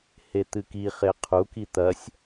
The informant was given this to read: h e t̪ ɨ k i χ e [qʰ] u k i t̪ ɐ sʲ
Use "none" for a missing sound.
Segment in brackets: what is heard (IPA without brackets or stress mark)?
qʰ